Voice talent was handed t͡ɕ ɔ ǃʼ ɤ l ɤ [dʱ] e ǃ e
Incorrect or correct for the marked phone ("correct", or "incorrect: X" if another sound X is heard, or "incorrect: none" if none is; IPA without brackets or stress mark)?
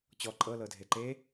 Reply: correct